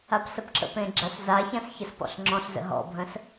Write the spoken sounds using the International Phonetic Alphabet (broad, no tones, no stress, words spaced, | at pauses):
apsəpǁə̰pẽ ɡ͡ǁaszaçãs çəspɔ̰ɬŋ͡ǁɔ̃ɬzə̰ ɦɔ̰bʱə̃s